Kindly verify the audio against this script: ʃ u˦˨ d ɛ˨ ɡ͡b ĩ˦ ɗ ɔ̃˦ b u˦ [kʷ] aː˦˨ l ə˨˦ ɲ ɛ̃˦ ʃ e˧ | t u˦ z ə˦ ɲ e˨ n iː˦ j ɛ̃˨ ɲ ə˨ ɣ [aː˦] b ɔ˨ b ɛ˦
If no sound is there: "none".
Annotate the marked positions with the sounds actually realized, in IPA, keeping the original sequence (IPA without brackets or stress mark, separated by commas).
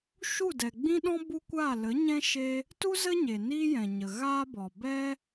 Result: kʷ, aː˦